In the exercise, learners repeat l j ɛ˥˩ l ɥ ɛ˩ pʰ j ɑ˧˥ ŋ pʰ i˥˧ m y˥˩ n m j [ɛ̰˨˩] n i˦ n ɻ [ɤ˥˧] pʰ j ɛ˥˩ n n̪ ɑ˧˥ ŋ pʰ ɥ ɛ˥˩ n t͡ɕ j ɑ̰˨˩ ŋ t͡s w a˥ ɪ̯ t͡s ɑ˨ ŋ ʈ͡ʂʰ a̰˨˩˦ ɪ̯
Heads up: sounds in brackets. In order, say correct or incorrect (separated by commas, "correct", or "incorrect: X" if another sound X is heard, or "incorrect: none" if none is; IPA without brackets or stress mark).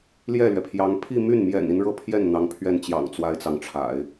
correct, correct